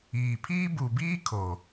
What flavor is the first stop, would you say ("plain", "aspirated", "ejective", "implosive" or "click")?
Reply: aspirated